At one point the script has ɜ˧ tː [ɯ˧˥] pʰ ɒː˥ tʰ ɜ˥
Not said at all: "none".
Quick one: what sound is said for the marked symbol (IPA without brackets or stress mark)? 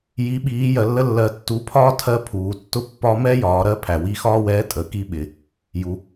u˧˥